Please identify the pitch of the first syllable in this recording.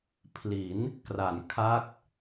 rising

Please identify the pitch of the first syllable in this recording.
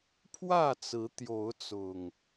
falling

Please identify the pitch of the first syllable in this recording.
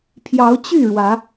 rising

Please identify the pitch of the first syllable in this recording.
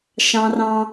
high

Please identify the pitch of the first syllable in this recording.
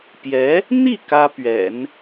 rising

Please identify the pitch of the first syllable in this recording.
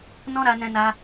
high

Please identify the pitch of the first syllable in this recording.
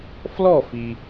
falling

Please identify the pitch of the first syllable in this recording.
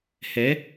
rising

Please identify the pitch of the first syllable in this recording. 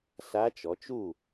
rising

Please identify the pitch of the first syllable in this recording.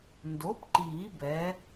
rising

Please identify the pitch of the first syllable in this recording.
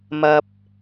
low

